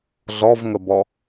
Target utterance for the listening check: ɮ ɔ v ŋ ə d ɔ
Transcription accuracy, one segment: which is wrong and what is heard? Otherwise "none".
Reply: d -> b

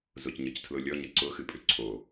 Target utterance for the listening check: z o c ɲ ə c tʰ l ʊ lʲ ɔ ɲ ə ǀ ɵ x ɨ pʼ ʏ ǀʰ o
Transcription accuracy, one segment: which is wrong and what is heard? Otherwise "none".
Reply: ɵ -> ʊ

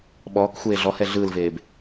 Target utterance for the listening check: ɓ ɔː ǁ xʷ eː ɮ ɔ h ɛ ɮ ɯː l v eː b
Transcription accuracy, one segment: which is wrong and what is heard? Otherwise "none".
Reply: ǁ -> k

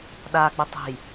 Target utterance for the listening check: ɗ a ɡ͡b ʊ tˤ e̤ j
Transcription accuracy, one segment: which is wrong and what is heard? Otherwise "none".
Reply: none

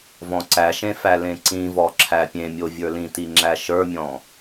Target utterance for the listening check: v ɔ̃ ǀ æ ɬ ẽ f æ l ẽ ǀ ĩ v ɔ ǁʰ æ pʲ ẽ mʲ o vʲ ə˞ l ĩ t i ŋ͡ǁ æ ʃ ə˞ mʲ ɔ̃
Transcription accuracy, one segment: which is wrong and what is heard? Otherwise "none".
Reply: ɬ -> ʃ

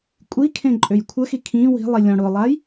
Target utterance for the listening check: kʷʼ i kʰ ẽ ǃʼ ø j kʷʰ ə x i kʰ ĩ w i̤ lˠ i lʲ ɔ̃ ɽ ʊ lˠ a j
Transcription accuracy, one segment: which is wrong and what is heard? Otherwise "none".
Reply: none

